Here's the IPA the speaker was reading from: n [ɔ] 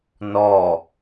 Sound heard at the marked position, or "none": ɔ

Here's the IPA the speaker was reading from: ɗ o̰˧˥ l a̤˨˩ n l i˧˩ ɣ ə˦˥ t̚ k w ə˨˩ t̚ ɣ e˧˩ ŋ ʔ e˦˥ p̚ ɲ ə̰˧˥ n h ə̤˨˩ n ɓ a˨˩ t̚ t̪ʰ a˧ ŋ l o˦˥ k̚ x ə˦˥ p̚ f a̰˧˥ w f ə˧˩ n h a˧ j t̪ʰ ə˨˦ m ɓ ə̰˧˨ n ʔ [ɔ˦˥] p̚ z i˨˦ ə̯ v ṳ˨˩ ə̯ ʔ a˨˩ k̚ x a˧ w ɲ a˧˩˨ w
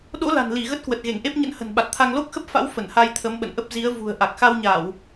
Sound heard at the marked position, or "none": ə˦˥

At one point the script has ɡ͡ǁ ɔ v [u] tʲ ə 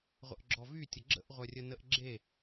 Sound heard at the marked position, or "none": y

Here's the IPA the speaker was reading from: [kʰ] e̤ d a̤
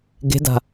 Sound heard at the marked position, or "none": ɡ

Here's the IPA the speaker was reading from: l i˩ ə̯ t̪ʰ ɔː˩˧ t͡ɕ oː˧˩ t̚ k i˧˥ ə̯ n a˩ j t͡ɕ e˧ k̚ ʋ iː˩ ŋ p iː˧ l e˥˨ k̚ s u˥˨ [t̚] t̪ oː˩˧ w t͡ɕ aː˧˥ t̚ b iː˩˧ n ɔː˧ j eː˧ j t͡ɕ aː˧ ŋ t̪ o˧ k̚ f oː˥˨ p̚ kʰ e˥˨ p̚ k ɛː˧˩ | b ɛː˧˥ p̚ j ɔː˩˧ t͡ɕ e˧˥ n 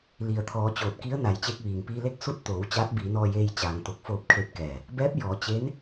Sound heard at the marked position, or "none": t̚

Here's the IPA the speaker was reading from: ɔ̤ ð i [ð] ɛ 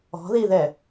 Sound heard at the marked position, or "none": ð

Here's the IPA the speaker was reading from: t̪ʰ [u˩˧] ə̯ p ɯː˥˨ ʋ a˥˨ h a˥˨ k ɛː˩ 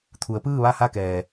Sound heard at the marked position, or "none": u˩˧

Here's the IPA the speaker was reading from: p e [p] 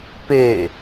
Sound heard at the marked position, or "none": none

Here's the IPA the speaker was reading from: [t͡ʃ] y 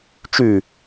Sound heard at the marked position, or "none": t͡ʃ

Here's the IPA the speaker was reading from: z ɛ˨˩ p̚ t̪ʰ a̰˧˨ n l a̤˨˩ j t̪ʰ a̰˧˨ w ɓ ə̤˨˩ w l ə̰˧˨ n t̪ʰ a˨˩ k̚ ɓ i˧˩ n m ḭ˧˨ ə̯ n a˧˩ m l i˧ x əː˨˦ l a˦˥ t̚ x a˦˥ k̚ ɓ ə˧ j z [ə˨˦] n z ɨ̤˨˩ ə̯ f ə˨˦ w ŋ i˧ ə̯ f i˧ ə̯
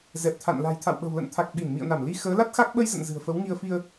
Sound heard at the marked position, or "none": ə̰˧˨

